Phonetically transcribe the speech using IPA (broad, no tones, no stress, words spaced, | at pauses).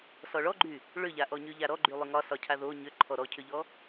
sɔɭɔɡ͡ǃy | ɭʏʎaʔɔɲy ʎaɾɔɡ͡ǃylˠʏ ŋɒsɒcʰa ðo ɲʏ ǃʰɔɾɔcʰʏʎɔ